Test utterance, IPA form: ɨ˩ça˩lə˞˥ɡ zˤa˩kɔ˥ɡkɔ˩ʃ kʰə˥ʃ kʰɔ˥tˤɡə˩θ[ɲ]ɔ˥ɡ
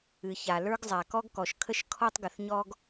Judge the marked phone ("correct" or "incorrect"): correct